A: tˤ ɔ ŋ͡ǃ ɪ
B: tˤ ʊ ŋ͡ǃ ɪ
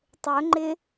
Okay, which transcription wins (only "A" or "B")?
B